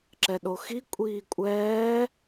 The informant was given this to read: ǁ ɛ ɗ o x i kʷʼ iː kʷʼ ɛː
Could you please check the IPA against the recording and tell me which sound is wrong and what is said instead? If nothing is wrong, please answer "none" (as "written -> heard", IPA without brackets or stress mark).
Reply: none